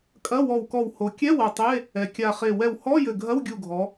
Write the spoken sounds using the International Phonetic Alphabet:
kʼ ɐ˧˥˧ w ɔ˧˩ w k ɔ˧˩ w h o˩˧ kʲ ɛ˧˥˧ w ɐ˧˩ tˤ e˧˥˧ | ɛ˩˧ kʲ a˧˩ χ e˧˩ w ɛ˧˩ w h ɔ˧˥˧ j ɘ˧˩ ɡʱ ɐ˧˥˧ w ɡʲ u˧˩ ɡʱ ɔ˩˧

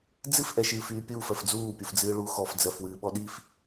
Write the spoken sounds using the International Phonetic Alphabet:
d͡z ɨ f ʔ ɛ ʃ ɨː f yː pʲ uː f ɜ f d͡z uː pʲ u f d͡z ɨː ɭ u x ɔ f d͡z ɜ f w ɨː ɓ ɔ ɗ i f

